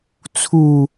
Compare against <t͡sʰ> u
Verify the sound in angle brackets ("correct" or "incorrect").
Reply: correct